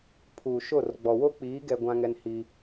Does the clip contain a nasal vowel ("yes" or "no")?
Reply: yes